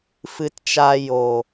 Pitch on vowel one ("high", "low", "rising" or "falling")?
low